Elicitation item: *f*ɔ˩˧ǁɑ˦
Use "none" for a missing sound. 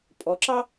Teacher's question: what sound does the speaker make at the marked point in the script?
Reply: pʼ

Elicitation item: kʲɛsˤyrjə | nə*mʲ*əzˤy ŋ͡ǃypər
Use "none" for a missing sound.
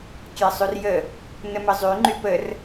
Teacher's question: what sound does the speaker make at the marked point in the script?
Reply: m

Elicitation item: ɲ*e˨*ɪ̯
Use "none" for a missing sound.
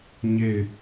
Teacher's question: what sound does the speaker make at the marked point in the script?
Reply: e˦˨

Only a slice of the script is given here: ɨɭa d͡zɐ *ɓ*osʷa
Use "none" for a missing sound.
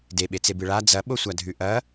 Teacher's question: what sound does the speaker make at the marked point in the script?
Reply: ɓ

